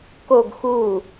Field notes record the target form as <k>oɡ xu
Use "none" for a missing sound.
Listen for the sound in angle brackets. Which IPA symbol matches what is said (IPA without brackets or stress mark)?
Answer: k